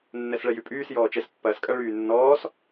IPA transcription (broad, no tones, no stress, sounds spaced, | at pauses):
nː ɛ s ɭ ɛ j y pʼ yː s j ɔː t͡ʃ ɛ s pː ɐː s kʼ ɐ ɭ yː nː ɔː s